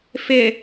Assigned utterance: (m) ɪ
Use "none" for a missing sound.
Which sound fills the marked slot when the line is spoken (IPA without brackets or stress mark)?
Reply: f